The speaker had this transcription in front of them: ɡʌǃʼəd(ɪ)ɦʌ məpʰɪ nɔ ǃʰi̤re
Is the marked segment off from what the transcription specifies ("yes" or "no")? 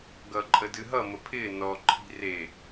yes